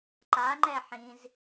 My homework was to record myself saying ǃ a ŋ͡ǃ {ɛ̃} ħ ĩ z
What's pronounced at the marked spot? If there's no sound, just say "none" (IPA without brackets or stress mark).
ɛ